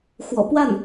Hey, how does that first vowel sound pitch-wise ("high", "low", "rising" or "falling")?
low